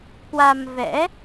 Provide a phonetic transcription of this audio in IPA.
k w a˧ m v ɛ̰˧˥

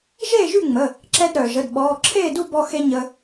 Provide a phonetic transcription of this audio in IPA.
ʒ eː˥˨ ʒ y˥˨ ŋ͡m ə˩˧˩ | ǁ ɛ˧ d ɾ œː˩ ʒ ə˩˧˩ d ɓ ɔː˩˧˩ ǁʰ eː˥˨ d u˥˨ b ɔ˧ x e˧ ɲ ə˧

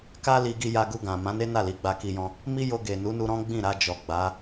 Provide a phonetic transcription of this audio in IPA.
k a˦ l i˧ ɡ i˧ j a˧ ɡ u˧ ɡ ã˨ m ã˨˦ n e˦ n a˦˨ l i˨˦ ɡ͡b a˧ k i˧ j ɔ̃˧ | m i˦ j o˧ ɡ e˨ n u˨˦ n u˧ ɾ ɔ̃˦ ɡ͡b ĩ˦˨ ɾ a˧ d͡ʒ ɔ˨ ɡ͡b a˨˦

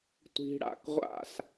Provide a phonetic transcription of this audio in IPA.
tʷ i̤˧ ɽ a̰˧ k ʁʷ a̰˦˨ s

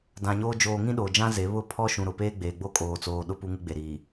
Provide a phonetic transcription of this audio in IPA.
d ã˨ ɲ oː˦ d͡ʒ oː˨ ŋ ĩ˦ ɗ oː˨ d͡ʒ ã˦ z e˨˦ β ʊ˦ pʰ ɔ˦ ʃ ũ˨ ɾ ʊ˨ p eː˦ ɡ͡b eː˨ ɡ͡b o˦ kʼ oː˨ t͡s oː˨ ɗ ʊ˦ p u˦ ŋ u˦ ɡ͡b e˨ ɾ iː˨

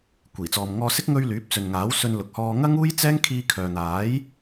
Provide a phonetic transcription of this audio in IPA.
kʷ iː˨˩ t͡s ɔː˨ m ŋ ɔː˧ s ɪ˥ k̚ ŋ ɵ˧ ɥ l yː˨˥ p̚ t͡s ɵ˨ n ŋ aː˨˥ w s ɵ˧ n l ʊ˨ k̚ h ɔː˧ ŋ ɐ˥ ŋ uː˥ j t͡s ɛː˥ ŋ kʰ iː˧ kʰ œː˨ n̪ aː˨˥ j

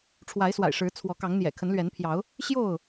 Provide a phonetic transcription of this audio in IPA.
ʈ͡ʂʰ w a˨˦ ɪ̯ s w a̰˨˩ ɪ̯ ʂ ɻ̩˨˦ t͡sʰ w ɔ˨˦ k ɑ˨˦ ŋ n̪ j ɛ̰˨˩ kʰ ə˨˦ n l ɥ ɛ˨˦ n pʰ j ɑ˨˦ ʊ̯ | ɕ j o˥˨ ʊ̯

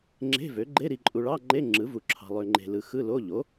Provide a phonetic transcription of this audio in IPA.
ŋ͡ǁ e̤˧˥˧ v ø˩˥ ɡ͡ǃ e˧˥˧ ɾ i˨ ǃʼ u˨ ɭ ɑ˧˥˧ ŋ͡ǃ e˧˥˧ ŋ͡ǁ ɯ˩˥ v u˨ ǁʰ ɑ̤˨ lˠ ø˨ ŋ͡ǃ e̤˨ l ɯ˨ x ɯ˧˥˧ l o˧˥˧ ʎ o˩˥

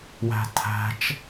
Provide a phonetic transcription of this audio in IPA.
w æ̤ tʰ æ̤ t͡ʃ

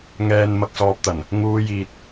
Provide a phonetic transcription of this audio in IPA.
ŋ ɛː˨ n m ɐ˨ k̚ s ɔː˨ p̚ t̪ ɐ˨˩ n | ŋ uː˨˧ j iː˨ t̚

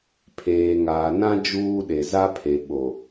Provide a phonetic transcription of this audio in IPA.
pʰ eː˨ ŋ aː˨ n ã˦ d͡ʒ uː˦ ɗ e˨ z a˦ pʰ e˨ ɓ o˨

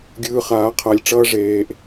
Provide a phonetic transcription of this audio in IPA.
ɡʲ ɯː˧ χ aː˨˦ qʰ a˧ lʲ ʈ͡ʂ ʌː˦ ʐ eː˦ ʔ

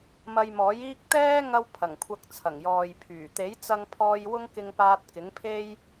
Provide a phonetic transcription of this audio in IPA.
m ɐ˧ j m ɔː˨˥ j iː˥ k̚ t̪ ɛː˥ ŋ ɐ˥ w pʰ ɐ˨˩ ŋ kʷʰ ɐ˧ k̚ t͡sʰ ɐ˨˩ ŋ j ɔː˨ j pʰ yː˨˩ t̪ e˨˥ j t͡s ɐ˧ ŋ pʰ ɔː˧ j w ʊ˥ ŋ k ɪ˧ ŋ p aː˧ t̚ k ɪ˨˥ ŋ pʰ e˥ j

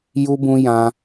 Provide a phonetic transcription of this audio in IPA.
j u˦ b ũ˦ j ã˦

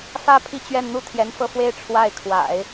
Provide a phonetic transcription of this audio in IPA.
f ä˥ pʰ i˥˧ t͡ɕ ɥ ɛ˥˧ n n̪ u˥˩ t̪ʰ j ɛ˧˥ n f ɤ˥˩ f w e˥ ɪ̯ ʈ͡ʂʰ w a˥˩ ɪ̯ kʰ w a̰˨˩˦ ɪ̯

